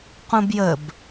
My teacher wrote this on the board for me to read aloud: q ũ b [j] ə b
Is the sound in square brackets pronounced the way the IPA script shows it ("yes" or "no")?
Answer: yes